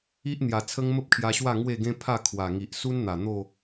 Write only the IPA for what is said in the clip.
i˦ʔn̪ja˨˩t͡sʰə˦ŋ mə˦p̚kʰja˧ɕwa˥˧ ŋwe˥˧ɡẽ˦ pʰa˥˧kʰwa˨˩ ŋi˨ʔsu˦nn̪a˨˩ n̪o˥˧

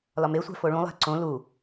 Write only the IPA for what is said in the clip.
lɒmesʷæ̤ foɭũlˠæ̤ ǀõ lu

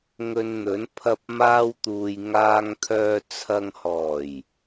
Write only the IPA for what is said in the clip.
ŋɵ˧nn̪ɵ˨˥n pʰɐ˧p̚maː˧wt̪uː˨j ŋaː˧ŋt̪ʰœː˧t͡sʰɐ˧ŋ hɔː˨˩j

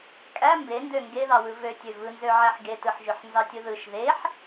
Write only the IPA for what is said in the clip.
kʼæ mbendø ŋɡeðɑwɯ vøtʲø vɯnzøʕæħ ɡetɯħʒøħnzɑ tʲɯðɯʃ ðeħ

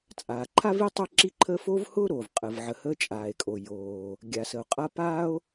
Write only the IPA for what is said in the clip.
t͡sʼaː˩ǃʰa˥vi˥ tˤʊ˥ǁi˥ǃʰəː˥ foː˥vhʊː˥ɾoː˩v qʼə˩vʕə˩ həː˥t͡ʃʼaː˩e̯kʼo˩joː˩ | ɡʲa˩sə˩o̯qʼa˥ paː˥o̯

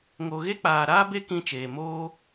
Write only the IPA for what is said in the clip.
ŋo˨ɣe˦k͡paː˨ ɾaː˦be˦kĩ˧t͡ʃeː˨ moː˦

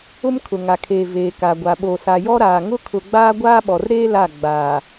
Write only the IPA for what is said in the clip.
ʊ˦mkʰʊ˨ŋa˨kʰeː˨ veː˨ka˨ɡʷa˨ɓo˨ sa˨jɔ˦ ɾaː˨ŋʊ˦ kʰʊ˨ɡ͡baː˦ ɡʷaː˦ɓɔ˨rɾeː˦ la˦˨ ɡ͡baː˨

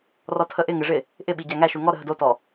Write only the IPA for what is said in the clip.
rɔtʰəʔɪ ŋɪʐɪ | ʔɪɓi ɟæŋæʃu ŋɔɾəɦə dotɔ

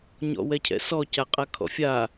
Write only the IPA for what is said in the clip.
ɲɔ̰wɛcʰɛ̰sɔ caqʼakʰɔ̰fʲa

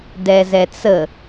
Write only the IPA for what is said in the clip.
dɛzɛt͡sə

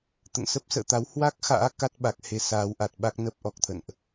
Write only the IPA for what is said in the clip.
t̪ə̰˧˨n sə˦˥p̚sə̰ː˧˨t̪a˨˦w hwa˦˥k̚xa̰ː˧˥ ka˦˥t̚ ɓa˨˩k̚he˨˦ saː˨˦wʔa˨˩t̚ɓa˦˥k̚ nə˦˥p̚ʔɔ˨˩k̚t̪ʰə̰˧˨nʔ

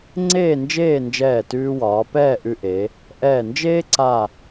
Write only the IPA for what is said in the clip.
ŋ͡ǀeː˥˧nd͡ʒeː˥˧ nd͡ʒɛː˧˩tʉː˧wɒː˩˧ pɛː˥˧ʔʉ˧ʔe˩˧ | ʔɛː˧˩nd͡ʒeː˥ǀa˧˩

